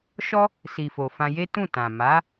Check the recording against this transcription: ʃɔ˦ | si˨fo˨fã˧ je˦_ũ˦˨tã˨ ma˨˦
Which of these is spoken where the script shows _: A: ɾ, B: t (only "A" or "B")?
B